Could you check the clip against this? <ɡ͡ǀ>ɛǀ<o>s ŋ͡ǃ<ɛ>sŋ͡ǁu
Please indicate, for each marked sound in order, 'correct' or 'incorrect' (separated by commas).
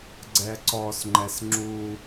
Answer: correct, incorrect, correct